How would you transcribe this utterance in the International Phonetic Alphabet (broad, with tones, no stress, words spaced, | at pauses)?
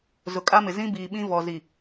zʊ˨kʼa˦mɪ˨ zĩ˦biː˨ɓĩ˦ vɔ˨zi˨